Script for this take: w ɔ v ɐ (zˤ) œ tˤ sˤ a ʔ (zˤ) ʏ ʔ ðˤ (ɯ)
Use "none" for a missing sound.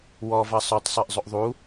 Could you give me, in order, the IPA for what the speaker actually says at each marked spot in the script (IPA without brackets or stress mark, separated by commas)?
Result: sˤ, zˤ, u